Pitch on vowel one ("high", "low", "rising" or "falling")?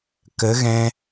rising